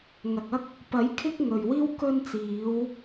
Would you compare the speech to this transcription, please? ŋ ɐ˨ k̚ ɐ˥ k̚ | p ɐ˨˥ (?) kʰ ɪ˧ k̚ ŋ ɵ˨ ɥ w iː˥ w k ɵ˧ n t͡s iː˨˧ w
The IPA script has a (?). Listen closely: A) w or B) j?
B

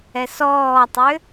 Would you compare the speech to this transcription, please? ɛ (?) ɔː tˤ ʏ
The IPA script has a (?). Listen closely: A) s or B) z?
A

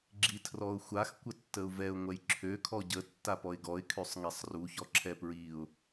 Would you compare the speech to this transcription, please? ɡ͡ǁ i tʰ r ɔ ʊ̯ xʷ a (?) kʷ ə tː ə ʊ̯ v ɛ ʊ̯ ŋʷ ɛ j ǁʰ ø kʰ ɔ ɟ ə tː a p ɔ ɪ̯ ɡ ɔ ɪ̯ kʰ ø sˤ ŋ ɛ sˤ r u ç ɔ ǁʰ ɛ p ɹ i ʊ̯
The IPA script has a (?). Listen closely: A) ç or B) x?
B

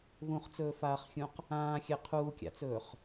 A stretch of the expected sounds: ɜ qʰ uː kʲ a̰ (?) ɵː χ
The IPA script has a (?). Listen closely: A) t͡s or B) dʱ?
A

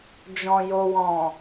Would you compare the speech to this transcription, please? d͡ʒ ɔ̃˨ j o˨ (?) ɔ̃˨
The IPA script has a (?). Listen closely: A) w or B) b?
A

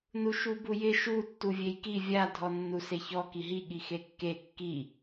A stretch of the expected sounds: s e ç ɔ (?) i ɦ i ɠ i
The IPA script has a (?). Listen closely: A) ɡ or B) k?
B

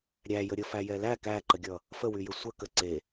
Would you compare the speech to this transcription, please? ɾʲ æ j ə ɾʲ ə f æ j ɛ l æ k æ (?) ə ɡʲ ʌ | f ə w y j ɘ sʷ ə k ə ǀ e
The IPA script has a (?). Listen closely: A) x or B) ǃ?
B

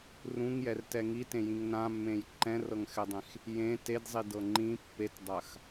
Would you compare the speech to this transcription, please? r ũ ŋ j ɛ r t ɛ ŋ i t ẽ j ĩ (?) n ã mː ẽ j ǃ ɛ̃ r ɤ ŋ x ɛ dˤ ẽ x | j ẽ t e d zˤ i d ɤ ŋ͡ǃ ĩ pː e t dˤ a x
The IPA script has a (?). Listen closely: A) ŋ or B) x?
A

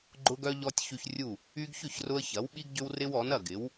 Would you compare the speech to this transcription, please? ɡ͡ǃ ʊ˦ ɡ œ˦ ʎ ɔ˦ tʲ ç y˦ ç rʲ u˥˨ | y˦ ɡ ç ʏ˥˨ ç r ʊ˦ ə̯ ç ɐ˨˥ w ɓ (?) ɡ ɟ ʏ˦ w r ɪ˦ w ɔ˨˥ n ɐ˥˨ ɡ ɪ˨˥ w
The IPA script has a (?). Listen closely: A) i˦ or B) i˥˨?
A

